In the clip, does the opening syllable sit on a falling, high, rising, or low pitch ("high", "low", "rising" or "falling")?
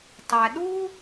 low